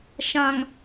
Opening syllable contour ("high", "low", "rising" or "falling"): low